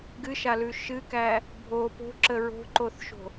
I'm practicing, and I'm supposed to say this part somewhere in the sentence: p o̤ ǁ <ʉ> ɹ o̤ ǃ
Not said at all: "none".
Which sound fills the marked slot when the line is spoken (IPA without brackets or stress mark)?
ə